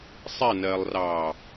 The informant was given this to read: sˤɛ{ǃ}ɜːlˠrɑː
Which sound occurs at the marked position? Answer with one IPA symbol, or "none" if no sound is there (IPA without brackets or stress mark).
n